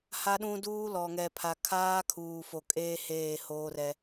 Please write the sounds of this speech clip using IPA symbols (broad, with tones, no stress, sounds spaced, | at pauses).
h a˦ ɗ ũ˦ d uː˦ l ɔ˨ ŋ ɛ˨ pʰ a˨ kʰ aː˦ kʰ uː˨ f o˨ kʼ eː˦ h eː˦˨ h oː˦ r ɛ˦